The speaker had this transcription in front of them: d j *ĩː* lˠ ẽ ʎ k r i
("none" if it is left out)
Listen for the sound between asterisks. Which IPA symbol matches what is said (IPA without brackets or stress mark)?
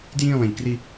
ĩː